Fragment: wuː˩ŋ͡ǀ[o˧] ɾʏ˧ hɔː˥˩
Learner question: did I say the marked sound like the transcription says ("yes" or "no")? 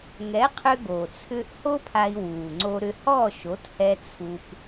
yes